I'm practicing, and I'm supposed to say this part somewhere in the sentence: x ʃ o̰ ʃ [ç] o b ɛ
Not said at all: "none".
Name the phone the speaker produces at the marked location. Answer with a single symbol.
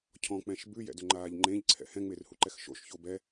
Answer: ç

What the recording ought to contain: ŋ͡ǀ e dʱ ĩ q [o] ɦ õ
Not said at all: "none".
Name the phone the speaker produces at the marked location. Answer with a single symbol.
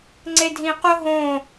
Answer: o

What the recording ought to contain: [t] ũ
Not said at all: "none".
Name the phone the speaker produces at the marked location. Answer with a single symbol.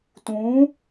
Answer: t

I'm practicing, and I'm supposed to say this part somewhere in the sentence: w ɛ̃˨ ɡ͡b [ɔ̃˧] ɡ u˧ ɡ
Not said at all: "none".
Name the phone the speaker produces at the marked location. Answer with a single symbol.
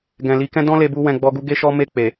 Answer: ɔ˧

